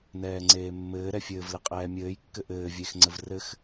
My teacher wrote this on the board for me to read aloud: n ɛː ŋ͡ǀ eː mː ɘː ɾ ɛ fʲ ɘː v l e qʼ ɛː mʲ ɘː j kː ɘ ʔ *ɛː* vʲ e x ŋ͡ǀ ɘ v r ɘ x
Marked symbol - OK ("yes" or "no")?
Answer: no